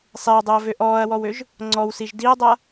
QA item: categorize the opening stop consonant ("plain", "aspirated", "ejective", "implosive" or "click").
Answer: plain